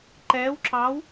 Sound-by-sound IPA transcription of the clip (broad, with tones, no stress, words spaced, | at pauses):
ǃɛː˧˥wǁɑ˧˥w